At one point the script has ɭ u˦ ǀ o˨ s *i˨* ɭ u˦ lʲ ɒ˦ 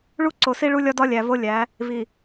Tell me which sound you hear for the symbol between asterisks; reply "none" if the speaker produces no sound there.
i˦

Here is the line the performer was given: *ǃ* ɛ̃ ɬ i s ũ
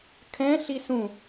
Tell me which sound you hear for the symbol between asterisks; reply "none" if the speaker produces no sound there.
kʰ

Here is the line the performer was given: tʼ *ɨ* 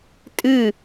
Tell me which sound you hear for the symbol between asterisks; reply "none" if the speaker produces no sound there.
ɨ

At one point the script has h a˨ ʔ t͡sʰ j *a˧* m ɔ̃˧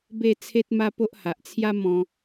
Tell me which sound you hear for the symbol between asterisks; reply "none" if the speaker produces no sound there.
a˦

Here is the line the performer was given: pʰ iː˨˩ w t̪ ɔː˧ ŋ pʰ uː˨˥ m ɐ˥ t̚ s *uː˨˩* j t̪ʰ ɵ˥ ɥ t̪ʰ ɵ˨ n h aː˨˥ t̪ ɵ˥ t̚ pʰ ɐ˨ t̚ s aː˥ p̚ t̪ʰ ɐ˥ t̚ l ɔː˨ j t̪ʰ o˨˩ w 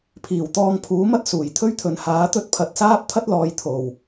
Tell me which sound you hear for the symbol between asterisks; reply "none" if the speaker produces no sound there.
uː˨˩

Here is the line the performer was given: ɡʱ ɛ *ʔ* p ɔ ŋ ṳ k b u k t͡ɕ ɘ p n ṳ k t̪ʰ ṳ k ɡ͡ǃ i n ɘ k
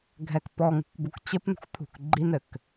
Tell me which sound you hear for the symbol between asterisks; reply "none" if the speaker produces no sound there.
k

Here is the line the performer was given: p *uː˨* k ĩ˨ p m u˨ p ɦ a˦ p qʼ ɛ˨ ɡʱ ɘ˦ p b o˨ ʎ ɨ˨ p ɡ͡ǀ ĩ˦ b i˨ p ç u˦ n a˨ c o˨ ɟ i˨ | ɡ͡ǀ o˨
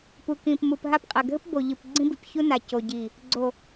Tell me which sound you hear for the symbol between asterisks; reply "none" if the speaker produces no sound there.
u˨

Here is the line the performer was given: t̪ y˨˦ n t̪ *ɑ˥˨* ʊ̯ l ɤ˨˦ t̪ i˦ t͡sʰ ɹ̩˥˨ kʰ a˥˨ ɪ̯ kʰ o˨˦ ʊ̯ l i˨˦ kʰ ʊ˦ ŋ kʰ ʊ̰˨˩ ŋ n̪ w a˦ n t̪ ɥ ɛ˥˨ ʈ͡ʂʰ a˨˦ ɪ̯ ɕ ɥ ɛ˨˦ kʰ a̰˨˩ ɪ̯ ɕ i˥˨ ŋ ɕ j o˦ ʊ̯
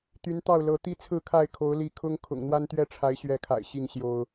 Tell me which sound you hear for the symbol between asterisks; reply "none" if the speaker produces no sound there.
ɑ˥˨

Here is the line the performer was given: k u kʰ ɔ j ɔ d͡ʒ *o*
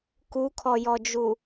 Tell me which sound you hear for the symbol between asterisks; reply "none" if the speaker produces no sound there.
u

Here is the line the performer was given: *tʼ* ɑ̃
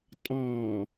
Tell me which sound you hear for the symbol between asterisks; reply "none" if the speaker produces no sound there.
tʼ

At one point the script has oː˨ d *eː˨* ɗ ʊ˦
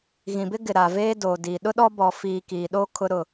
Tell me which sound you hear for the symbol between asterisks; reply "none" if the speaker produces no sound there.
iː˨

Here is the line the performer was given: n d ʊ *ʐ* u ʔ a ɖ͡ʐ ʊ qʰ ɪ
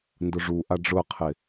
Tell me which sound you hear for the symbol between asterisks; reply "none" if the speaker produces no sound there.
ʐ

